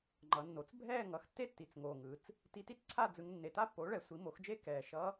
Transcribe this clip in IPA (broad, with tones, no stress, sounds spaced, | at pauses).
ŋ͡ǃ ʌ˩˧ nː o˩˥ t͡s bʱ ɛː˥˧ ŋ ʌ˩˥ x tː e˥ tː i˩˧ t͡s ŋ oː˨˩ ŋ ɯ˩˧ t͡s | t i˧˥ t i˥ t͡s ǀʰ a˥˧ d͡z ɯ˧˥ ŋ nː e˨˩ t a˥ pː oː˩˥ ɭ ɛ˩˧ sʷ i˩˥ m o˩˥ x d͡ʒ eː˥ k ɛː˨˩ ʃ ʌ˧˥